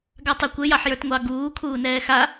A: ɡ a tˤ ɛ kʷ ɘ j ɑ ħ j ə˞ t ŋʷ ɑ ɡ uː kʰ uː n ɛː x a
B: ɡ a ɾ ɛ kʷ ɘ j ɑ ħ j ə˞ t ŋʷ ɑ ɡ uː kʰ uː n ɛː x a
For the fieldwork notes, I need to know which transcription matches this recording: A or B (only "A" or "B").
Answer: A